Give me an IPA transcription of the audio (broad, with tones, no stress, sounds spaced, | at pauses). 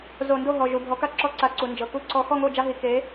z o˧˩˧ n d o˥˨ ɦ ɔ˩˧˩ ʒ u˩˧˩ bʱ ɔ˨˥ k a˥˨ ǁ ɔ˦ ǀ a˨˥ ǀ u˩˧ n d͡ʒ ɤ˩˧˩ k u˥˨ ǀ ɔ˦ x ɔ˥˨ ŋ o˥˨ d͡ʒ a˦ ɦ i˩˧ k e˨˥